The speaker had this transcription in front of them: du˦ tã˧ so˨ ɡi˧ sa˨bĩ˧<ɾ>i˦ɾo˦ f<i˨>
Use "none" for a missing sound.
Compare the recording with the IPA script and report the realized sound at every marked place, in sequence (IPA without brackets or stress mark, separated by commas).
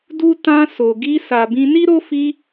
n, i˧